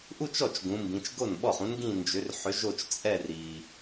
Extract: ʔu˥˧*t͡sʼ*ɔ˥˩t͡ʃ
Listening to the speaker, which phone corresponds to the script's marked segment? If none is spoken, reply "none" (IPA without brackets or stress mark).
t͡ʃ